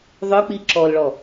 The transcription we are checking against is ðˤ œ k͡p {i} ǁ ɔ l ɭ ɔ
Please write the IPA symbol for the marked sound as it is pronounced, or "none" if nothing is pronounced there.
i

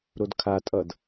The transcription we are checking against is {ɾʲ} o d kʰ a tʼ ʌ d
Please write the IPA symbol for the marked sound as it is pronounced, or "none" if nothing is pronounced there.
ɾ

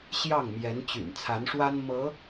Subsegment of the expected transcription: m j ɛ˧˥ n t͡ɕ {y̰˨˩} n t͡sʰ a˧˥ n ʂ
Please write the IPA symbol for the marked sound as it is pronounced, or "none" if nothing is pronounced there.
y̰˨˩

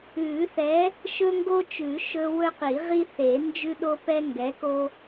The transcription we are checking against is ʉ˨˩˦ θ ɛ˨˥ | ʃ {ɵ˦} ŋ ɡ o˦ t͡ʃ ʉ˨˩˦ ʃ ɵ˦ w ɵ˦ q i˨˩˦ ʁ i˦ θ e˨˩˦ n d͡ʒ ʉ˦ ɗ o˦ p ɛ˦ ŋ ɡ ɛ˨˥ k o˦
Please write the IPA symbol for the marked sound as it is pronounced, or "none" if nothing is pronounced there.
ɵ˦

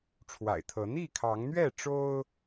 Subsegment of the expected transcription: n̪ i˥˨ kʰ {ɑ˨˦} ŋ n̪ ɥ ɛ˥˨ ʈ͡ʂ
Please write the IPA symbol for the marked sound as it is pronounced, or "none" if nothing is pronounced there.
ɑ˨˦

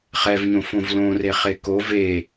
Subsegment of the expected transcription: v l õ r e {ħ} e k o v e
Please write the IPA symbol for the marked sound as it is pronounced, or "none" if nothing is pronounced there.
χ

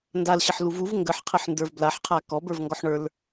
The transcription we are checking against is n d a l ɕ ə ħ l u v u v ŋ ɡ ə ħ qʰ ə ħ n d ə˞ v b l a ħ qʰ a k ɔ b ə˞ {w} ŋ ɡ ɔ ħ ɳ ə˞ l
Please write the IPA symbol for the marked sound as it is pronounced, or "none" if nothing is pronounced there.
v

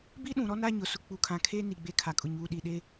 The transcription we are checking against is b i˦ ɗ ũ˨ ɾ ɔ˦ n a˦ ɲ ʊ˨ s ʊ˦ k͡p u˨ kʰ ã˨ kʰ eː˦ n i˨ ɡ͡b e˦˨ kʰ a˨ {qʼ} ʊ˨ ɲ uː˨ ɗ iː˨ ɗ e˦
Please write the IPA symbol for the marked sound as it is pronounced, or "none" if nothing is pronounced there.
kʼ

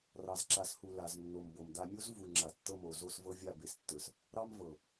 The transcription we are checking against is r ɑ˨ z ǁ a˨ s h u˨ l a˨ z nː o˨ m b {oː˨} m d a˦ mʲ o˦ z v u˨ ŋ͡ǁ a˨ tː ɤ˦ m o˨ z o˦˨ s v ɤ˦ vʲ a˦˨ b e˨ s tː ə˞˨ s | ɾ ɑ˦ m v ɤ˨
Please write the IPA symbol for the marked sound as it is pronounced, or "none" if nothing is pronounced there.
o˨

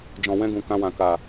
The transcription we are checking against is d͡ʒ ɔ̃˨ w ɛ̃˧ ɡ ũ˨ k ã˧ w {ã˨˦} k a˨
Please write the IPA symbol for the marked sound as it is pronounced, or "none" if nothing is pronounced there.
ã˨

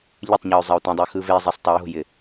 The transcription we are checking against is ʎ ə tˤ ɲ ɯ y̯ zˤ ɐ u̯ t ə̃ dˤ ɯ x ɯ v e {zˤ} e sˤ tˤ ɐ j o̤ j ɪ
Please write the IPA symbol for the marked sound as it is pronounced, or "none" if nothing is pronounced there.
zˤ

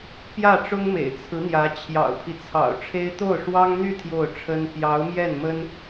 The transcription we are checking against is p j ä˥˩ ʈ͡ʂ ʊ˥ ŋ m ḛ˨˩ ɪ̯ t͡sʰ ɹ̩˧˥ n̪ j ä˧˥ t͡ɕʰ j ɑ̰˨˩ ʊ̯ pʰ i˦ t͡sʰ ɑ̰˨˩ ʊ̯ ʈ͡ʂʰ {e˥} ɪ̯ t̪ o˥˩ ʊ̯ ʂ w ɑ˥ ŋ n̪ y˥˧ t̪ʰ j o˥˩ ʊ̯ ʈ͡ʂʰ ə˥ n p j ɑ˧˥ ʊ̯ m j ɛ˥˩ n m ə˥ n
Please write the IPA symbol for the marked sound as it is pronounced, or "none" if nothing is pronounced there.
e˥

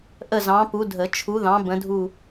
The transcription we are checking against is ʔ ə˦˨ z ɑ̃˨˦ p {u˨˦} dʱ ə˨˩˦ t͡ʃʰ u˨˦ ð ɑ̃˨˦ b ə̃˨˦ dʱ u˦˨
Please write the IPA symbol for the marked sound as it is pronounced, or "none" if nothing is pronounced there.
u˨˦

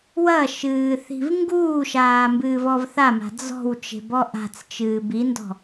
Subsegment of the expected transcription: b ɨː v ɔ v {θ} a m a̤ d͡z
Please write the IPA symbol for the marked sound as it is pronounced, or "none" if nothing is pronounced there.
θ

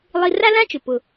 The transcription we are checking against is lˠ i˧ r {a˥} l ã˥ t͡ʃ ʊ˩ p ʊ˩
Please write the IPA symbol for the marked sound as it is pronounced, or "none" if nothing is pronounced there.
a˥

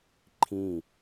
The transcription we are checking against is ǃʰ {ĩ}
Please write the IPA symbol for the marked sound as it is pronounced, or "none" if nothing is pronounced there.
ĩ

